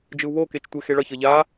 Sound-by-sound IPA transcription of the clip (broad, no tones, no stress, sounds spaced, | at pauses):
d͡ʒ ɯ u̯ β o k e t͡ʃ tʷ e x e ɭ ʌ ç ʌ ʎ a